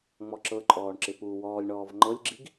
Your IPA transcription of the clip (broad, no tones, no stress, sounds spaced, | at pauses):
ŋ͡m ɔ ǁ ɤ ǃʼ ɔː ɳ ǁ ɪ p uː w ɔː lʲ ɳ ɔː v ŋ͡ǃ ɤ lʲ ɡ͡ǁ i ɡ